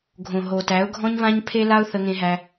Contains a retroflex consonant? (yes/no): no